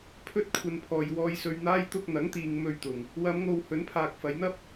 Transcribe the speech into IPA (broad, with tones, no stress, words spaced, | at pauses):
pʰɵ˧t̚kʷʰɐ˨n pʰɔː˨j wɔː˨jsɵ˨ɥn̪aː˧j t̪ʊ˧k̚n̪ɐ˨˥ŋt̪iː˨ŋ mɵ˧ɥt̪ʊ˨ŋ | wɐ˨˧mŋo˨w hɵ˨˥npʰaː˨k̚ fɐ˨˧jn̪ɐ˥p̚